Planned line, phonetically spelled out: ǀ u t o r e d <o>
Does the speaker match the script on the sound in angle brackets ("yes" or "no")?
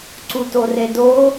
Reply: yes